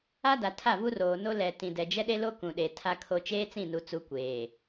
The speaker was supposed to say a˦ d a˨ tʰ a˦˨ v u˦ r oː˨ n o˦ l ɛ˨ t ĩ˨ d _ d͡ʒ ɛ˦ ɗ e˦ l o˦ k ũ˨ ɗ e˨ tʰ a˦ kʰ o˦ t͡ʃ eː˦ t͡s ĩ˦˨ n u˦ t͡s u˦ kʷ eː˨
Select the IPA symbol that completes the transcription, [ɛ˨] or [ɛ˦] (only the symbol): ɛ˨